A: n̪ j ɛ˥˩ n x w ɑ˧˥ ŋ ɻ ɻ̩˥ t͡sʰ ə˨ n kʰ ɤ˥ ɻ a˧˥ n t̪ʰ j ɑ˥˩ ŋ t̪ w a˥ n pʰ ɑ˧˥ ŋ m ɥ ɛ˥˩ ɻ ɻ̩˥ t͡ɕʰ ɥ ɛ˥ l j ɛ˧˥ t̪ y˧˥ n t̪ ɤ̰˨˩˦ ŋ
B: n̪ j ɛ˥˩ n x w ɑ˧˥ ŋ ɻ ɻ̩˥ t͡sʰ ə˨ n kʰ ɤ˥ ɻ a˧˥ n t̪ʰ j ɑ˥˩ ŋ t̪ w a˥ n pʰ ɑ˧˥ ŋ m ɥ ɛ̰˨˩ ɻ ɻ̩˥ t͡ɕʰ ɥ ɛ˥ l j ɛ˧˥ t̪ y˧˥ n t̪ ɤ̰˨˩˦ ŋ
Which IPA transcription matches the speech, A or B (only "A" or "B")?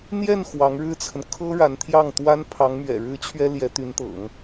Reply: B